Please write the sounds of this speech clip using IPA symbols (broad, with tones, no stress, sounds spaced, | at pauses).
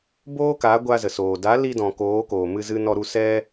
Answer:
b oː˦ k a˨˦ ɡʷ a˧ z ə˨ s oː˨ d a˨˦ l i˧ d ɔ̃˨ k oː˨˦ k oː˨ m ɨ˧ z ɨ˦ n ɔ˧ ɾ u˧ s ɛ˦